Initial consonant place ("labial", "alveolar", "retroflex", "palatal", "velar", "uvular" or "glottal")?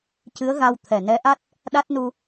palatal